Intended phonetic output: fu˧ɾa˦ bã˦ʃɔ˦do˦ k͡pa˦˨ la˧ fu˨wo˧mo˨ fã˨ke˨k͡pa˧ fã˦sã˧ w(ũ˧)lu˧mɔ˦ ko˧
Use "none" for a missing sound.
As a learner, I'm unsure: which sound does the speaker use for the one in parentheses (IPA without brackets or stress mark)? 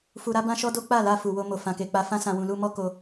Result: ũ˨